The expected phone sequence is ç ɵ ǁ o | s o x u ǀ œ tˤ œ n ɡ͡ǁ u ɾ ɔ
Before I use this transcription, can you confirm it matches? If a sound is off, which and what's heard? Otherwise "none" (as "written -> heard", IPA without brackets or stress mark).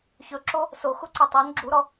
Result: none